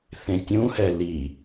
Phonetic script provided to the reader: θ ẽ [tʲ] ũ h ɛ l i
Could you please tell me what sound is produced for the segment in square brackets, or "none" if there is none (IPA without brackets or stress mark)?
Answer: tʲ